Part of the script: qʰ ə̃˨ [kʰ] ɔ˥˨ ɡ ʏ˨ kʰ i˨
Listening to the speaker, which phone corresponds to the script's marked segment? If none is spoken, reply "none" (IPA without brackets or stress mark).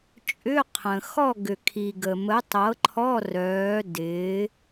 x